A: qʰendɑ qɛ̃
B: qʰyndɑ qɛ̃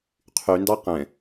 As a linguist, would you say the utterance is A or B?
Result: B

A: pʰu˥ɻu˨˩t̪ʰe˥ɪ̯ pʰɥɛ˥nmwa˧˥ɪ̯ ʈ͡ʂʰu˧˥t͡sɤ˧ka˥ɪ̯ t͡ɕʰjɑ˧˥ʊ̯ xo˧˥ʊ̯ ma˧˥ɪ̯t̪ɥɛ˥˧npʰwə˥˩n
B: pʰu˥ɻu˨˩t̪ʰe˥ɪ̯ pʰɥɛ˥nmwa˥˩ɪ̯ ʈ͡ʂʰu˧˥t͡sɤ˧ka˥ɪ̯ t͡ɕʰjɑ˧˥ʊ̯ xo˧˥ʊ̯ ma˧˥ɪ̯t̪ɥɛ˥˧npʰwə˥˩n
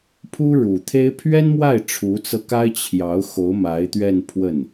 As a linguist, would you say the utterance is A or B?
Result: B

